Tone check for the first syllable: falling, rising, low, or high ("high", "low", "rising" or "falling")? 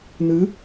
rising